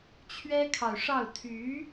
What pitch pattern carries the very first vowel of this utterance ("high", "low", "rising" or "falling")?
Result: high